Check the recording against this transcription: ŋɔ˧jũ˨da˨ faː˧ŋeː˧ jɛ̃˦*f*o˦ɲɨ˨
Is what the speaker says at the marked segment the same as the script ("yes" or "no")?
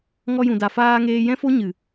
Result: yes